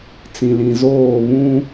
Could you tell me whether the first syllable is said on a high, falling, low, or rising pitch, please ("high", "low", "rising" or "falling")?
low